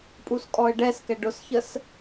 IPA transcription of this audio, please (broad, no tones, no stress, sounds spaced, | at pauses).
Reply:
pʼ u s kʼ ɔ ə̯ ɖ ɛ s k ɛ ɖ ʊ s ç ə s